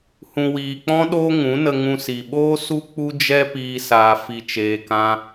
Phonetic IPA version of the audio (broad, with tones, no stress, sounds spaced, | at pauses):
h ũ˨ w iː˨ k͡p ɔ̃˦ ɗ oː˦ ŋ ũ˨˦ n ə˧ ŋ ũ˧ s i˨ ɓ oː˦ s u˦ k͡p u˦ d͡ʒ ɛ˦ p iː˧ s aː˧ f i˧ t͡ʃ eː˧ k ã˦